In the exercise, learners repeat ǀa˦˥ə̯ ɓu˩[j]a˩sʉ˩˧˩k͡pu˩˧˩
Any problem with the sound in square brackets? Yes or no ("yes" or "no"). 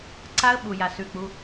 no